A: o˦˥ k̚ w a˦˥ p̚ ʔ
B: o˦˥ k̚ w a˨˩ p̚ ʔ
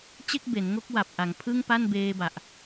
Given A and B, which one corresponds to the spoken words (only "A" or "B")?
B